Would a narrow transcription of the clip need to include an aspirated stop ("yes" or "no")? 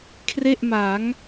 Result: yes